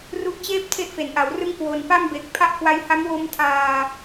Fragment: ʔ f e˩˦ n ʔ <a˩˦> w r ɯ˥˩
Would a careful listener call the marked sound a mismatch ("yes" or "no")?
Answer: no